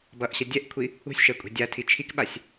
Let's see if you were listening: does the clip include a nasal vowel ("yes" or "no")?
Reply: no